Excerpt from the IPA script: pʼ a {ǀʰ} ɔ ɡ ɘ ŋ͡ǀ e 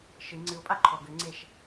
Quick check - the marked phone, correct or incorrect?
incorrect: ǃʰ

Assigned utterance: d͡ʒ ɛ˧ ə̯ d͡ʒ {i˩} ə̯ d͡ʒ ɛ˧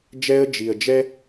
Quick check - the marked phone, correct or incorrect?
correct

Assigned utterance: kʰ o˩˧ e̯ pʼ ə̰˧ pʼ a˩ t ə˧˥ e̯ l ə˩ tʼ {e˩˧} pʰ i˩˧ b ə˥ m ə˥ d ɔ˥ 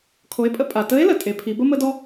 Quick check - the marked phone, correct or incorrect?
correct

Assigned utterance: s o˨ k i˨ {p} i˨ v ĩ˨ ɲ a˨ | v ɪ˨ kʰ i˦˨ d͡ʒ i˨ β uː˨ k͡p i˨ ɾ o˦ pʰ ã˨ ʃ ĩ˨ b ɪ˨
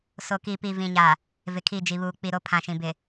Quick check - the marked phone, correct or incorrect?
correct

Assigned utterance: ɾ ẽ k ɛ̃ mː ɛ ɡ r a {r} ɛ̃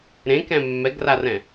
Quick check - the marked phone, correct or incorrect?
correct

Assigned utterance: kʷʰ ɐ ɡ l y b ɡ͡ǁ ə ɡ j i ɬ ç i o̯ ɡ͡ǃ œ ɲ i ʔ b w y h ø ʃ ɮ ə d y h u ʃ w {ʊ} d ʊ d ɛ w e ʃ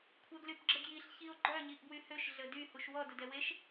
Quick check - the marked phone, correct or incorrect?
incorrect: ɔ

